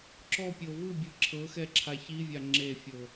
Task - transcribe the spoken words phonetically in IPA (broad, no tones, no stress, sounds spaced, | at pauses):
ǁ ɔ pʲ ɤ v ɯ bʲ ɯ ǁʰ ɤ x ɛ ǁʰ a ç i vʲ a ŋ͡ǁ e fʲ ɤ